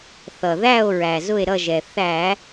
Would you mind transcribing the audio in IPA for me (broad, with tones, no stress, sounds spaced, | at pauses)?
θ ʌ˩ ð æ˦˨ o̯ ɹ æ˩ z ʊ˦˨ e̯ ɾ ʌ˦˨ ʒ ɛ˩ θ æ˧˩˧